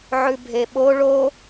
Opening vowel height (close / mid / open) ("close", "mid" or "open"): close